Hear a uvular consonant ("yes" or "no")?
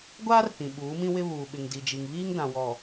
no